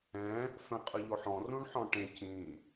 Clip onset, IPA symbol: ɛ̃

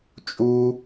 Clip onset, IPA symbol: t͡ʃʼ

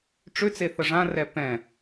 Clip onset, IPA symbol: ʈ͡ʂ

